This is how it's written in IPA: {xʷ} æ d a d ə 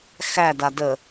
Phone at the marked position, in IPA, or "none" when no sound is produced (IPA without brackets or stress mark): x